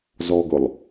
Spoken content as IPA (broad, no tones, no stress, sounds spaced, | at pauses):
z ɔ ɡ ʊ lˠ